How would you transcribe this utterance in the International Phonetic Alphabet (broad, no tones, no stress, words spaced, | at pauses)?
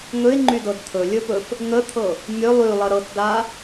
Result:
ŋɵɪ̯ŋ͡ǃydɤd t̪ʰɵlʲɵpɵf | ŋət̪ʰɤ | mʲɵ lˠylˠə ɾɤtda